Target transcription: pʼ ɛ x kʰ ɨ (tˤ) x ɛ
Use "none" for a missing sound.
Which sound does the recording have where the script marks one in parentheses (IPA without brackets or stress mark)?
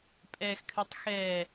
tˤ